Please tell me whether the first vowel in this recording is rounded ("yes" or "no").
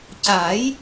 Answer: no